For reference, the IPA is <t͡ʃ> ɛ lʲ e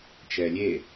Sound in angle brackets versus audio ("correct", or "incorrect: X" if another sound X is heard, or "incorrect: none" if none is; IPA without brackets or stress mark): correct